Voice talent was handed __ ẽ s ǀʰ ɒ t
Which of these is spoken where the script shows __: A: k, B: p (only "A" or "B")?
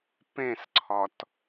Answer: B